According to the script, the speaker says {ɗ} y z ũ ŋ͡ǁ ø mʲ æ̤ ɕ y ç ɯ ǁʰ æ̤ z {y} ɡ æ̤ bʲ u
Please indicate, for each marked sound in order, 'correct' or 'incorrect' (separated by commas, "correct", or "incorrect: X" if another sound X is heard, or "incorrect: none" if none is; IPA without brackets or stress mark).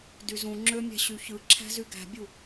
incorrect: d, correct